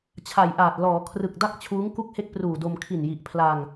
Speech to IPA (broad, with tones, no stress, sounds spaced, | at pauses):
t͡ɕʰ a˨˩ j ʔ aː˨˩ t̚ l ɔː˩˦ kʰ r ɯ˨˩ k̚ d a˥˩ k̚ t͡ɕʰ uː˦˥ ŋ k u˥˩ k̚ h e˥˩ k̚ p r uː˨˩ d o˧ m kʰ i˨˩ n j i˨˩ ʔ pʰ l a˧ ŋ